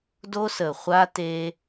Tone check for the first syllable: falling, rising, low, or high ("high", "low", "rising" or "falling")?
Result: high